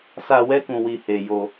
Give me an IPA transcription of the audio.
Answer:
s a˧ w ɛ˧ k ũ˨ w i˨ h e˨ j o˧

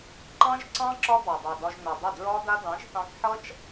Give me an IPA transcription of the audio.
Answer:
ǃ ɑ̃˦ ʒ ǀ ɑ̃˦ ǁ ɒ˦ b ɑ˨ dˤ ɑ˨ d ɒ˧ ʒ n o˨ dˤ ɪ˦˨ d ɹ ɒ˦ d a˦ d ɑ̃˨˦ ʒ θ ɑ̃˧ k ħ ʌ˦ t͡ʃ

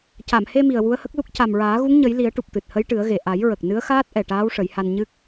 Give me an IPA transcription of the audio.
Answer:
c a˨˩˨ m h e˧ m i˨˩ ə̯ w u˧˥ ə̯ h ə˦˥ k̚ l u˦˥ k̚ c a˨˩ m ɹ aː˨˩˦ ɣ u˧˥ ŋ ɲ ə˨˩˦ j l i˨˩˦ ə̯ ʈ u˨˩ p̚ t̪ ɨ˨˩ t̚ h ə˧˥ j ʈ ɨ˨˩˦ ə̯ ɣ e˨˩ ʔ a˨˩˦ j ɹ ə˨˩ k̚ n ɨ˧˥ ə̯ x aː˦˥ t̚ ʔ ɛ˨˩ ʈ aː˧˥ w ʂ ə˨˩˦ j h a˧ n ɲ ɨ˦˥ k̚

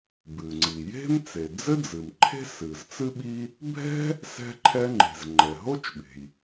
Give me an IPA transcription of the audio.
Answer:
b ɨ˩ ŋ͡ǀ i˩ j e̤˥ m t͡s e˩ d͡z ɘ˥ d͡z ɨ˩ m ǃʰ e̤˥ s ɨ˩ z t͡s ɨ˥ ɓ i˥ | bʱ ɛ̤˥ | s ɛ̤˥ ǃʰ ɛ˥ ŋ͡ǃ e̤˩ z ŋ͡ǃ ɛ˩ ɦ o˥ t͡ʃ ɓ e̤˩ j

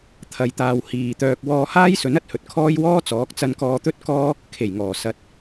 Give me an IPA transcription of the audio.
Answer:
t̪ʰ ɐ˨ j t̪ aː˨ w h iː˨ t̪ œː˧ k̚ w ɔː˧ h aː˥ j s ɵ˨˥ n ɐ˨ t̚ h ɵ˨ t̚ kʰ ɔː˥ j w ɔː˥ t͡s ɔː˨˥ k̚ t͡s ɐ˧ n k ɔː˧ t̪ ɵ˥ t̚ k ɔː˥ | kʰ e˨˩ j ŋ ɔː˨˩ s ɐ˨˥ t̚

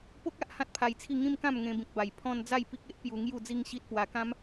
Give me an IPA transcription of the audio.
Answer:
p o˦ k̚ a˦ ʔ h ã˦ t̚ pʰ a˧ j t͡sʰ i˥˧ ŋ ĩ˦ m k ã˥˧ m ŋ ẽ˧ b ĩ˨ k̚ b a˨˩ j pʰ ɔ̃˦ n d͡z a˥˧ j p i˦ k̚ e˦ ʔ p j u˧ ŋ j u˥˧ d͡z i˦ ŋ ɕ i˦ t̚ p w a˧ k ã˦ m

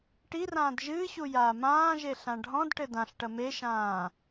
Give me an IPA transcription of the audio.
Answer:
ʈ i r ãː d ʒ ɨː ɕ u j aː m ãː ʒ e ɬ ã ɖʱ ɔ̃ d ʈ ɘ d ã ɬ ʈ ɐ m e ʃ ãː

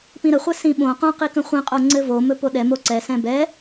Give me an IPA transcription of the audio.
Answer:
p ĩ ɾ ə χʷ ɛ s ĩ ɓ õ q õ q i k ə̃ χʷ ĩ qʼ o ŋ͡ǀ ɘ v o m ɵ p o ɗ ɛ m o ǀ ɛ s ɛ̃ b ɛ

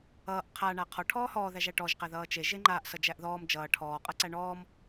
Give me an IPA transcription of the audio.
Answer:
ʌː ʔ qʰ a ɳ a qʰ ɔ ʈʰ ɔː h ɔː ð æ ʒ æ ʈ ɔ ʒ q æ ð ʌː t͡ʃ e ʒ e ŋ͡ǃ aː ʔ s ʌ d͡ʒ æ ʔ ð ɔː m d͡ʒ ʌː ʈʰ ɔː qʼ ʌ ǀ æ ɳ ɔː m

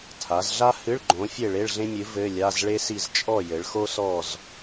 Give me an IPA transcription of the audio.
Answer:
tʰ a˩˧ z ɮ a˥ h ɨ˧˥˧ ɭ ɡ͡ǃ õ˨˥ fʲ e˥˨ ɭ e˧˥˧ ɭ ɮ ẽ˥ mʲ ɨ˨˥ v ɘ˧˥˧ lʲ a˧˥˧ z ɭ e˥ s i˥˨ z t͡ʃʼ ɔ˥˨ j ɘ˩˧ ɭ x o˥ s ɔ˥˨ z

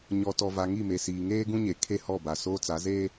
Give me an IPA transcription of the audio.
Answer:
ɲ ɔ˨ t ɔ˨ v a˨ ŋ i˦˨ m e˨ s iː˨ ŋ eː˦ ɡ ũ˦ ɲ e˨ kʰ e˦˨ h ɔ˦˨ b a˨ s oː˦ t͡s a˨˦ z eː˦

